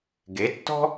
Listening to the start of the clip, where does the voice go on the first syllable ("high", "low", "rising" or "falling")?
rising